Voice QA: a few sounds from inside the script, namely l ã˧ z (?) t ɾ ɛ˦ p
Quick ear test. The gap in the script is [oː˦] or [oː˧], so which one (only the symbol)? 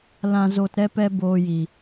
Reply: oː˧